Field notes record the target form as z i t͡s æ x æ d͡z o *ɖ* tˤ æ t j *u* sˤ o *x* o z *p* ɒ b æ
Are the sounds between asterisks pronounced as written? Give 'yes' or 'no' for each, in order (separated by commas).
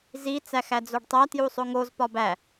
yes, yes, no, yes